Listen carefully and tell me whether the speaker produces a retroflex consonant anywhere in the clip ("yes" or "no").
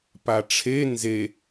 yes